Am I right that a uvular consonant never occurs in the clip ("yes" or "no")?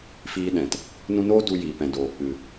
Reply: yes